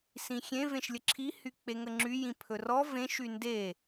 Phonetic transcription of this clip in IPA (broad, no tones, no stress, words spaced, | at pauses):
sĩxʲẽ vẽʃlʲəǁʰi hyk͡peŋəŋ͡ǁy jĩpʰɵrɔ vẽʃ ynde